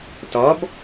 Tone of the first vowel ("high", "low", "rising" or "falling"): rising